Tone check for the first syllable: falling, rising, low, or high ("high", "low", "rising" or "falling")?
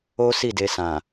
high